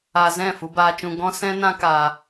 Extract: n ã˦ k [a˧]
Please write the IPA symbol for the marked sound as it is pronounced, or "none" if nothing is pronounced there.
aː˧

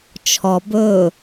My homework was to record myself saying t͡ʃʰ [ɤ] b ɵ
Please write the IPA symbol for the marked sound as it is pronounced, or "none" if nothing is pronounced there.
ɔ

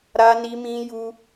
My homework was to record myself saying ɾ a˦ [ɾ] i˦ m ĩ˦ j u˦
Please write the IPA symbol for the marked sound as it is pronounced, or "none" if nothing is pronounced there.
n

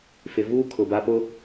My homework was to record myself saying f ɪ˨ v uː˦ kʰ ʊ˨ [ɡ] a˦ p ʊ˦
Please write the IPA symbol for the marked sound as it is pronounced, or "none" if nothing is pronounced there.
b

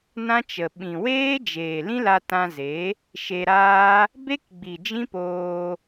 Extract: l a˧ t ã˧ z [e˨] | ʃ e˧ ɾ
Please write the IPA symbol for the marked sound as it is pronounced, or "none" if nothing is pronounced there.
e˨˦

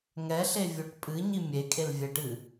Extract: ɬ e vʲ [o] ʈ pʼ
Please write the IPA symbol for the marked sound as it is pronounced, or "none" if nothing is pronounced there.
o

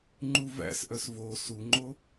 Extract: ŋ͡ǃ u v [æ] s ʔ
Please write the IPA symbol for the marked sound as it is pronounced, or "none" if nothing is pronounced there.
æ̰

